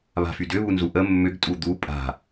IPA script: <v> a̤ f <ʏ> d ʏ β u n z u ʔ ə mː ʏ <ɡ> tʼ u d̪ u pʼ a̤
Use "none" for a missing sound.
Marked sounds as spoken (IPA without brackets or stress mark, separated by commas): β, y, ɡ